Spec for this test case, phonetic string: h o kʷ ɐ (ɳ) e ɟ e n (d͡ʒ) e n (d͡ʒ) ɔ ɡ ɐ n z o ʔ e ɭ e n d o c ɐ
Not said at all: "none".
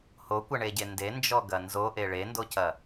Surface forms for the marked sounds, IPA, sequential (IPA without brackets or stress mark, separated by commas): ɳ, d, d͡ʒ